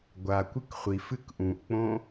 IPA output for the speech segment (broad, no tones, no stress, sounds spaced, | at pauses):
ɡʷ a kʷ ɨ k χʷ i f ɨ k ʔ ũ ʔ k͡p õ